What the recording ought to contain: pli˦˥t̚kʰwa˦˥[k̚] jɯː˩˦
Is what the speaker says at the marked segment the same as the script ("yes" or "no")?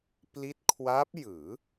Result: no